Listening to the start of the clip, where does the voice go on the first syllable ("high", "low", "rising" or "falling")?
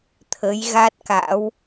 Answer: rising